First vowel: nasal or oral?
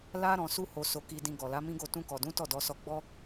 oral